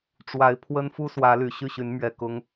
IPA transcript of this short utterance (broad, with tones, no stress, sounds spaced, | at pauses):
ʈ͡ʂ w a˨˦ ɪ̯ pʰ w ə˦ n f u˦ s w ä˨˦ l y˨˩ ɕ y˥˨ ɕ y˨˦ n m ɥ ɛ˨˩ k ʊ˨˦ ŋ